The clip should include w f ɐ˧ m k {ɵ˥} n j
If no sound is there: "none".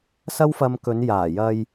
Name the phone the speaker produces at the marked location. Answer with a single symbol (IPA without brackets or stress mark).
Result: ɵ˨˧